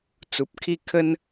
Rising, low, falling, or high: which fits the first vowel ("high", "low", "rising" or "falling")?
low